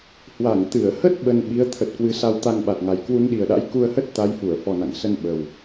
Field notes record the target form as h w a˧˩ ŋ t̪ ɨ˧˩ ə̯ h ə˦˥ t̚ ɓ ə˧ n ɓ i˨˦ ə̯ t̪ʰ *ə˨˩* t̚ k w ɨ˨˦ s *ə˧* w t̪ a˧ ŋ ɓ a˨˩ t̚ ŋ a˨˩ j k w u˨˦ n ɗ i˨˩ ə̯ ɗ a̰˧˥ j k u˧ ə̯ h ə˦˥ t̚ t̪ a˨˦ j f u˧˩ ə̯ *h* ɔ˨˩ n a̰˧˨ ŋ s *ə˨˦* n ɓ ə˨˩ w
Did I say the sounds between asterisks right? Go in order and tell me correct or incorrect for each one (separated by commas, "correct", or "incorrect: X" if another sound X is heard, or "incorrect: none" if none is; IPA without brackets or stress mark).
correct, incorrect: a˧, incorrect: f, incorrect: ə˧